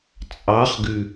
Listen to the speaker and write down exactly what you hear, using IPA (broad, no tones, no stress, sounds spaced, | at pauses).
t͡sʼ ɑ χ ɡ ʉ